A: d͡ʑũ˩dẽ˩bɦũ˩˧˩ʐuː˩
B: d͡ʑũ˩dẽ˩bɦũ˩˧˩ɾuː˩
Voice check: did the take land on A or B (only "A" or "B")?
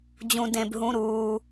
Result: B